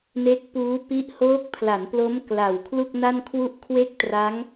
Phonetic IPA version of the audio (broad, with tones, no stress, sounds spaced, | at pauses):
n e˦˥ k̚ p uː˦˥ p i˦˥ ʔ h oː˦˥ k̚ pʰ l a˩˦ n p l o˦˥ m k l a˨˩ w kʰ l u˥˩ k̚ n a˥˩ n kʰ w u˥˩ ʔ kʰ w e˥˩ k̚ t r a˦˥ ŋ